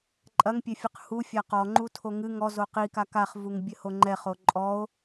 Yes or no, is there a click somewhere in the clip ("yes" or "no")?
yes